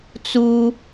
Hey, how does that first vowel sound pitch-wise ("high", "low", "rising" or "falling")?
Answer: low